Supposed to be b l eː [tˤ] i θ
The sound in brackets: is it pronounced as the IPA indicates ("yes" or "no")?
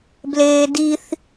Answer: no